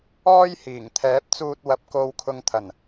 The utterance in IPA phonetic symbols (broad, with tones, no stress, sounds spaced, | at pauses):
ɔː˥ j h iː˨˩ ŋ t̪ʰ ɛː˨˥ p̚ t͡s uː˧ t̚ w ɐ˨˥ p̚ k o˧ w kʰ ʊ˧ ŋ t̪ʰ ɐ˨˩ n